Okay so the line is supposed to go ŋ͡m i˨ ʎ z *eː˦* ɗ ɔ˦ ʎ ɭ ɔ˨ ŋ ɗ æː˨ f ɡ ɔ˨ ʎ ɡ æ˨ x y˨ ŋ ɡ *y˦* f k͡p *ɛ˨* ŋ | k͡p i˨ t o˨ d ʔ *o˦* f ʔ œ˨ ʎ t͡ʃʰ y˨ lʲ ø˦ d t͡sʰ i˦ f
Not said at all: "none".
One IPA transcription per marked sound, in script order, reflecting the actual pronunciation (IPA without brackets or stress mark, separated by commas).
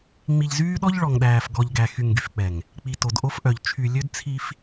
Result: yː˦, y˨, ɛ˨, o˦